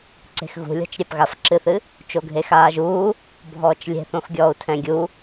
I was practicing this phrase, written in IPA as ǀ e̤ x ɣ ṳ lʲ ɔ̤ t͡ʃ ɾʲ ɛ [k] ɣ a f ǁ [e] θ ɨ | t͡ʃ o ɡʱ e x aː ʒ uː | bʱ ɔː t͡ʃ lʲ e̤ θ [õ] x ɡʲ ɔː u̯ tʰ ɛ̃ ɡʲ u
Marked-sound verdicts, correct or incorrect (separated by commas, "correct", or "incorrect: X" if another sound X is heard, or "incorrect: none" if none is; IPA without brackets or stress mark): incorrect: p, incorrect: ɨ, correct